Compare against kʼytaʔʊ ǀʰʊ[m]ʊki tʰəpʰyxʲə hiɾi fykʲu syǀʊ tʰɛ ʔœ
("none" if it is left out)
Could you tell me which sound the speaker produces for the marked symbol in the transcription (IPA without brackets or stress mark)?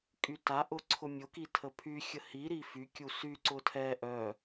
mʲ